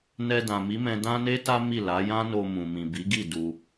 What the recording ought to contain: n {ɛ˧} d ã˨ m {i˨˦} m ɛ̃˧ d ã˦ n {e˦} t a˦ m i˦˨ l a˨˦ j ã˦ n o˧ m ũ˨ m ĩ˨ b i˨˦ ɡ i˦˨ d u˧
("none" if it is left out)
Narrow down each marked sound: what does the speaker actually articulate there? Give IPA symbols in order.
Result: ɛ˧, i˨˦, e˦

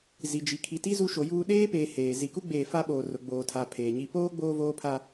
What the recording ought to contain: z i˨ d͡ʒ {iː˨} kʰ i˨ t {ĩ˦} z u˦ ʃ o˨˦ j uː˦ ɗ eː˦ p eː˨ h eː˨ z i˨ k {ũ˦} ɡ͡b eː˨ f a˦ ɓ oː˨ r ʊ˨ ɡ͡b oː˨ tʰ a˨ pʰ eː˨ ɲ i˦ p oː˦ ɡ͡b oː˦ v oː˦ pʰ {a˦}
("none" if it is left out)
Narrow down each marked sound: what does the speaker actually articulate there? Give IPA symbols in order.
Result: i˨, i˦, u˦, a˦

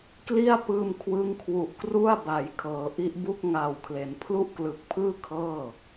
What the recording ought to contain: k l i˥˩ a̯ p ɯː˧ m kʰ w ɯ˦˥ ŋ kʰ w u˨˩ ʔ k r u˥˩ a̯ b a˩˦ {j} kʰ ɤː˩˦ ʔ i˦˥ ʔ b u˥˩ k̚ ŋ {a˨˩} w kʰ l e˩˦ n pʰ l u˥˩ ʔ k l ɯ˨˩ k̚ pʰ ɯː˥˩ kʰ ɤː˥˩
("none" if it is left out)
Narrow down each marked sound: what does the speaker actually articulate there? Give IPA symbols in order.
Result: j, a˨˩

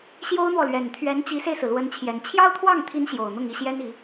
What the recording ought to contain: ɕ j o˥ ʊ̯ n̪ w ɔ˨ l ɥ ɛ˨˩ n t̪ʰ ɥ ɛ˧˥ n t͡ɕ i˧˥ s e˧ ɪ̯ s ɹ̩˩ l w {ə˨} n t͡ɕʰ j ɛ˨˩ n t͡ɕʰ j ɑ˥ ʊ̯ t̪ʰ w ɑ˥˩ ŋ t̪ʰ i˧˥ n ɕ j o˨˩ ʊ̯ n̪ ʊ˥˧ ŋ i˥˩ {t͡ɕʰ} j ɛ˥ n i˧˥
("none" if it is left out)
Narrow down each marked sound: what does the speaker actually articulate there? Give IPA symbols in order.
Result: ə˧˥, ɕ

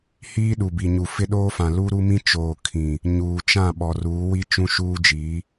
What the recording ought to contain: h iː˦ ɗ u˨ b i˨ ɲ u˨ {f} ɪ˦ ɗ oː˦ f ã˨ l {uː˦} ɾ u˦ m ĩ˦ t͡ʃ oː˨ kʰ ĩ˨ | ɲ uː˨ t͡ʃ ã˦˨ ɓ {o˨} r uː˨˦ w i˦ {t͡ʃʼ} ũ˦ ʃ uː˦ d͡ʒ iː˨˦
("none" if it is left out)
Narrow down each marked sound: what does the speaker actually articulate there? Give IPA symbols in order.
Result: f, uː˦, ɔ˨, t͡ʃ

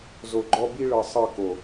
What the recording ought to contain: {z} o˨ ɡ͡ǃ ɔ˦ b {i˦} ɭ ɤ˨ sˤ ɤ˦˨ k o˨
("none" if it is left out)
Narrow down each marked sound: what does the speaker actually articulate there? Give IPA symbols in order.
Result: z, i˦

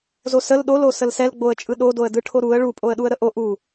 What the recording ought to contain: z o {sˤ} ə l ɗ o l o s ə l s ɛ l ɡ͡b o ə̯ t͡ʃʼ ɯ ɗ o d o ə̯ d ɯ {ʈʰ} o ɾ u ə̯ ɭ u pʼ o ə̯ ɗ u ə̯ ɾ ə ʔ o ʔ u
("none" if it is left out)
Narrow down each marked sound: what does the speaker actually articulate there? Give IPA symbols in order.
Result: s, ʈʰ

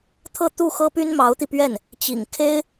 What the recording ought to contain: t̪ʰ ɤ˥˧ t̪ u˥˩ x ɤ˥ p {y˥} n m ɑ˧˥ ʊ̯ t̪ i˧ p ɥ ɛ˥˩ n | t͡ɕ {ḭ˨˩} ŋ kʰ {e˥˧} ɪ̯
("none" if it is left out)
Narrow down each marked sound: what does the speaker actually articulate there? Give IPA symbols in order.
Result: y˥, ḭ˨˩, e˥

